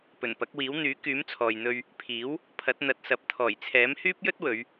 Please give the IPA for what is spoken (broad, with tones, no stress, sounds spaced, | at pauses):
p ɵ˨˩ n p ɐ˨˥ k̚ w iː˨˥ w n̪ yː˨˥ k yː˨˥ m t͡sʰ ɔː˨ j n̪ ɵ˧ ɥ | pʰ iː˨˥ w | pʰ ɐ˨˥ t̚ n̪ ɐ˨˥ t̚ s ɐ˨˥ p̚ t̪ʰ ɔː˨˩ j t͡sʰ ɛː˨˥ m h yː˥ p̚ j ɵ˥ t̚ w ɵ˨˧ ɥ